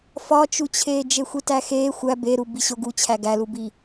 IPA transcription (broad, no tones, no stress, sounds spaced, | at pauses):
f ɒ t͡ʃ u t͡ɕʰ eː d͡ʒ e xʷ i t æ x eː xʷ æ b e ɾ u b i ɕ o ɡ u t͡ɕʰ æ ɡ æ l u b i